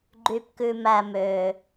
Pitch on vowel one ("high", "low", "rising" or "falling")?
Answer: low